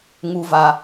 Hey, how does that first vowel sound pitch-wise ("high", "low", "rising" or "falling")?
high